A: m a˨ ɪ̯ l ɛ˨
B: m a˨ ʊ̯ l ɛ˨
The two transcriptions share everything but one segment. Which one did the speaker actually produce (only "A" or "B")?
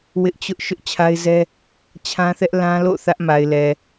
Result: A